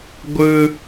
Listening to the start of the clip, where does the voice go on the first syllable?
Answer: high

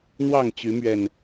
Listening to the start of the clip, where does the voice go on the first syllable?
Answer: falling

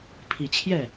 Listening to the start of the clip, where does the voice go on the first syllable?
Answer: low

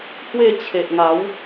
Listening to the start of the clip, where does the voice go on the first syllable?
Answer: falling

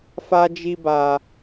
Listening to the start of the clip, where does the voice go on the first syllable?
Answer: high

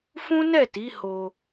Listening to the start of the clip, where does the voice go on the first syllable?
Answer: high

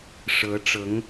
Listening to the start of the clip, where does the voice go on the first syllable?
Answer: rising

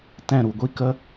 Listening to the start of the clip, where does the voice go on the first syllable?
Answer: falling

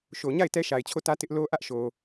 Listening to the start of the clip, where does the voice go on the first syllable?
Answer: low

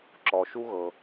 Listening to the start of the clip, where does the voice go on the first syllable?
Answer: low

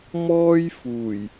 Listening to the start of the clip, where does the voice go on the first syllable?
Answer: high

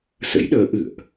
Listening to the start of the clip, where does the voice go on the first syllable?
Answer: rising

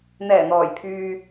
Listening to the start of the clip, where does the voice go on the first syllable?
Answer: low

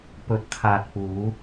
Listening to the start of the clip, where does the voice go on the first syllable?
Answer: rising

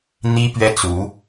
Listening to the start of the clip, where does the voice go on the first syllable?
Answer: high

